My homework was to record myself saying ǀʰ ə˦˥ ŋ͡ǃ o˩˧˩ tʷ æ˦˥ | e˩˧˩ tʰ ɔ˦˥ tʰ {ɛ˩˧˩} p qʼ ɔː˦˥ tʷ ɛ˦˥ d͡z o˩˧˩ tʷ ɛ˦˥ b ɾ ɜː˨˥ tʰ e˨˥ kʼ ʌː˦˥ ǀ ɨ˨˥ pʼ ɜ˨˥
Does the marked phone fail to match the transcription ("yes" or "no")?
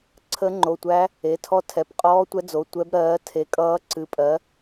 no